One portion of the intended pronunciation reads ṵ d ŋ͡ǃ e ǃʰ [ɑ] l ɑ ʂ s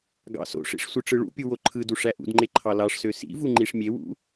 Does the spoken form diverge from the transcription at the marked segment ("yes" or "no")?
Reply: no